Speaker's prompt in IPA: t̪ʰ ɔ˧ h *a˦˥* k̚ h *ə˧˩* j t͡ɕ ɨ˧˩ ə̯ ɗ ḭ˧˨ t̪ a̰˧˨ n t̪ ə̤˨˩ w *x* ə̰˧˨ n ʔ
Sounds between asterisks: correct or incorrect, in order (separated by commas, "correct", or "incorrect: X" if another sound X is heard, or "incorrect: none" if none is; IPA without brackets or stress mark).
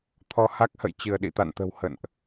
correct, incorrect: ə̰˧˨, incorrect: h